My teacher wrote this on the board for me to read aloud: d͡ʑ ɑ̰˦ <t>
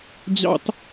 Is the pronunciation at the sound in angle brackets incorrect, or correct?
correct